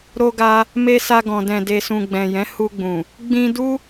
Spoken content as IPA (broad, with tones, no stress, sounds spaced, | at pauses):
ɾ o˧ ɡ a˧ | m e˧ s a˧ ɡ ɔ̃˨ d ɛ̃˨ d e˨ s ũ˨ ɡ͡b ɛ̃˨ j ɛ̃˨˦ h u˧ ɡ͡b ũ˨ | ɡ͡b ĩ˧ d u˦